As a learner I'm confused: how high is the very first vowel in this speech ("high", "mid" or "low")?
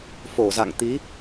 mid